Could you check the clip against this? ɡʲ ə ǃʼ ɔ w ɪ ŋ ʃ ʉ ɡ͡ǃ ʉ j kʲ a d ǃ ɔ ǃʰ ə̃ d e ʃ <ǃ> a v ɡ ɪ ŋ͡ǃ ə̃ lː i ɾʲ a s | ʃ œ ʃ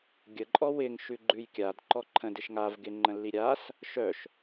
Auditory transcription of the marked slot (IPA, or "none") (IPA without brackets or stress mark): ŋ